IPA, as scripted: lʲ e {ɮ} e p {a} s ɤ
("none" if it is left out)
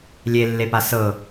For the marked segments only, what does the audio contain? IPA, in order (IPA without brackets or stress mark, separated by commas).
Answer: lː, a